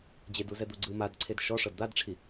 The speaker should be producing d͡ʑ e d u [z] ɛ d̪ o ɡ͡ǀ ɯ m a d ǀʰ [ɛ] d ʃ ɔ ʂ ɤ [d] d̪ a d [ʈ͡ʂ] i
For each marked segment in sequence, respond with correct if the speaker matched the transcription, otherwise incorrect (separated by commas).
correct, incorrect, correct, incorrect